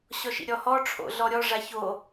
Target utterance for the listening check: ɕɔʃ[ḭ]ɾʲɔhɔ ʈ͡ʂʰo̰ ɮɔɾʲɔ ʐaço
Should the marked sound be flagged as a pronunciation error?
no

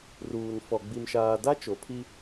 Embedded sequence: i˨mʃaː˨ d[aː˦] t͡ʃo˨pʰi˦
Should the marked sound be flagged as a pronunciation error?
yes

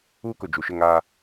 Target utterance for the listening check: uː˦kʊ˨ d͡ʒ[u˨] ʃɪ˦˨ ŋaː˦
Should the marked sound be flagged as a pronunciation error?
no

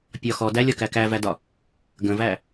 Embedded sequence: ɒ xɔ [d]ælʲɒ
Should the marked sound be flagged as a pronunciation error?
no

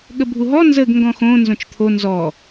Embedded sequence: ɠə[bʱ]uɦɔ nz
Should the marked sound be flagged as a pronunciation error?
no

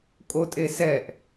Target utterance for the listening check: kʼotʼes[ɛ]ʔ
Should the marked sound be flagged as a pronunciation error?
no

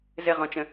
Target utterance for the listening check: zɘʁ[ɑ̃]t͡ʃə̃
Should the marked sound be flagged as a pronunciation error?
yes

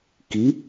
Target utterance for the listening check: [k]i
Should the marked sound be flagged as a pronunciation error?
no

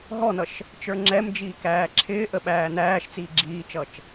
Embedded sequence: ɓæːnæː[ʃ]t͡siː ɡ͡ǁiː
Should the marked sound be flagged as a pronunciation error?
no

